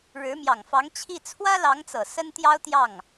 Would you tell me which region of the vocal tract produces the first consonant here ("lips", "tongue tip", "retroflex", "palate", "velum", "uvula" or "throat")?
retroflex